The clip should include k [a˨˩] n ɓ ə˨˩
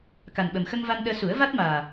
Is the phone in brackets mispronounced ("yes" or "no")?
no